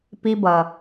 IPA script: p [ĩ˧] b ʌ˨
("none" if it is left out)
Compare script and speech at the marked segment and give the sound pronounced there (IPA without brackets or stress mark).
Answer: i˧